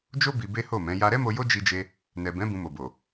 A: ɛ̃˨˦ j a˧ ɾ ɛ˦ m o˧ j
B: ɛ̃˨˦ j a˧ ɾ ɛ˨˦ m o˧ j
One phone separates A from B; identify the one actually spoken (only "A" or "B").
A